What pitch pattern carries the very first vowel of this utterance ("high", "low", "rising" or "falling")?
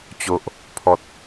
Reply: low